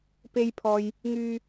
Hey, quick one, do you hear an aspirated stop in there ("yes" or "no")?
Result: yes